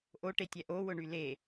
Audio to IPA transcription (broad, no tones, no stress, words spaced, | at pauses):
ʔoʈetʲɛ ʔowʊɳy le